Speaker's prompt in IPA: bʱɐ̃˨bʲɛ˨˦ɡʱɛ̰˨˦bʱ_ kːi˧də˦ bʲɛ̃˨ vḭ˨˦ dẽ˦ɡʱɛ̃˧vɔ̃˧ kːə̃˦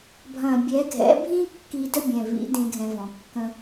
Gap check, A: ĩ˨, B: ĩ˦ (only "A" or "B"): B